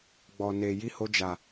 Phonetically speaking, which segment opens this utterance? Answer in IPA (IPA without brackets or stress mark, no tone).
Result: ɡ͡b